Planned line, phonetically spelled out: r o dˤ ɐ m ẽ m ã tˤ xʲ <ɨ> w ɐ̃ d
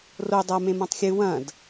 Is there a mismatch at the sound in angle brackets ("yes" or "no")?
no